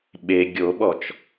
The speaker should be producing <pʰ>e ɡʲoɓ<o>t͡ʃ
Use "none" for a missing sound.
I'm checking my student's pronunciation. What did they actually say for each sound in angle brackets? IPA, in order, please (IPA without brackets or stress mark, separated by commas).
ɓ, ɔ